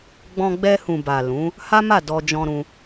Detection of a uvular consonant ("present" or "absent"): absent